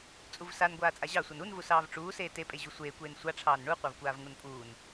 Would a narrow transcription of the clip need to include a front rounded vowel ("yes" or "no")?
no